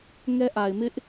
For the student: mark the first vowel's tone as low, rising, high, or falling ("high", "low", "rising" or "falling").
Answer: high